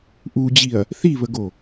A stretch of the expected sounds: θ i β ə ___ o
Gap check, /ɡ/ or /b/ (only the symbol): ɡ